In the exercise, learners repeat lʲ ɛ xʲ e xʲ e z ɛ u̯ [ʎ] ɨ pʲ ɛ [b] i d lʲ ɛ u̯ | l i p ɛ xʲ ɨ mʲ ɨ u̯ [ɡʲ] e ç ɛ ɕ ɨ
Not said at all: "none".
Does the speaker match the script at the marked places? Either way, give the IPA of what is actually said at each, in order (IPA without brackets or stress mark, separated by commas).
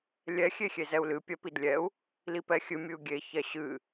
l, p, ɡʲ